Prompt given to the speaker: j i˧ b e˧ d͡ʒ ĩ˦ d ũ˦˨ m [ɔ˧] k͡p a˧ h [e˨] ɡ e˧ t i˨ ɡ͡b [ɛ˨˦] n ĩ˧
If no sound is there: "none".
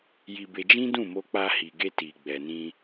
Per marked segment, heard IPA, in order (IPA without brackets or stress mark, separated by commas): o˧, i˨, ɛ˨